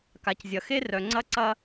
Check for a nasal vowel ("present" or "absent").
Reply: absent